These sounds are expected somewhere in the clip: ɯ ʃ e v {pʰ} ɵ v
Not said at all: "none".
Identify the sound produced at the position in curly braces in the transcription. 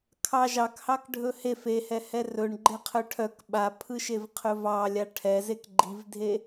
qʰ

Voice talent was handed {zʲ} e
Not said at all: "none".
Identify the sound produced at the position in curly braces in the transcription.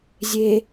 zʲ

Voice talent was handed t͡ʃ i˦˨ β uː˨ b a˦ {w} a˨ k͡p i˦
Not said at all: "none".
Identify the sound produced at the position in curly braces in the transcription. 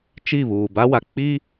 w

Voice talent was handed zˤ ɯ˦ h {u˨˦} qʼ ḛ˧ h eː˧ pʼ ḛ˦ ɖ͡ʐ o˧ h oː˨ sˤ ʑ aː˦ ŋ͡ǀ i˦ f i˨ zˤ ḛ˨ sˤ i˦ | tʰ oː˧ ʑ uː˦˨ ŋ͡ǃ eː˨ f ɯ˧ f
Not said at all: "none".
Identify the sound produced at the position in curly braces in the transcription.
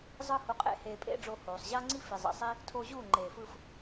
u˧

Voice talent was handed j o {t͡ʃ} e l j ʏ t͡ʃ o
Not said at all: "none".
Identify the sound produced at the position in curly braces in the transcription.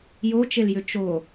t͡ʃ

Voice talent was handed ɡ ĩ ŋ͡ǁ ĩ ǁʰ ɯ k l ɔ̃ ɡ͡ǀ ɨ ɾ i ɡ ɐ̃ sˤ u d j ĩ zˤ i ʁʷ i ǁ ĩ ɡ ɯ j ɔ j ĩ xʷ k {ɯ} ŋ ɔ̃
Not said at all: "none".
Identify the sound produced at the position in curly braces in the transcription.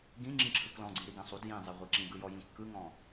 ɯ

